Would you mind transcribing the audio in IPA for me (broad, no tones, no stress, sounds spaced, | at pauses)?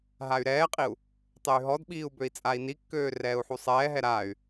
ɦ a y̯ ɾ ɛː qʼ i u̯ | tˤ e y̯ ɦ ɔ d ɓ iː u̯ b ø i̯ t͡sʼ a i̯ n i kː øː r ɛː u̯ ħ u sˤ ɛː ɦ ɛ ɾ aː y̯